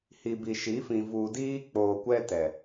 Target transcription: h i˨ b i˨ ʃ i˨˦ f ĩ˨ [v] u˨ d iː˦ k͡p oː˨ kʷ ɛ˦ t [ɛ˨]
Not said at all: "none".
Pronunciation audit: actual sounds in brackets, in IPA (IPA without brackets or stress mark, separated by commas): v, ɛ˨